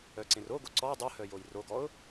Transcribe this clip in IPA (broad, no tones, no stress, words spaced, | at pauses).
œǀẽroɡo ǀɔ dˤuhœ jojroɡɔʊ̯